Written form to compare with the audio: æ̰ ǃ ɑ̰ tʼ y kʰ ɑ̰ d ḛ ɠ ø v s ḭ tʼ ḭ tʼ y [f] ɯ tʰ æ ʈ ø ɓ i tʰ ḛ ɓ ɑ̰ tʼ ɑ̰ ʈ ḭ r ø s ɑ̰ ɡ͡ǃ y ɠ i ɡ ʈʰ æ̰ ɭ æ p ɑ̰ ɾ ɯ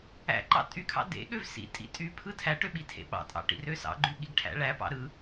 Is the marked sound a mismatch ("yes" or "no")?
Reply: yes